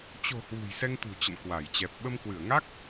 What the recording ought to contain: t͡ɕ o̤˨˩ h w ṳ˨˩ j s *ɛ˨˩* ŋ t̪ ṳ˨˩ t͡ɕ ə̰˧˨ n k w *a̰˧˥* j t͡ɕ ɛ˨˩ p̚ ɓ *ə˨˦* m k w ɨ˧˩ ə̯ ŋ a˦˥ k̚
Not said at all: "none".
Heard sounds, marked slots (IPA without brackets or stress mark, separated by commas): ɛ˧, a˧˩, ə˧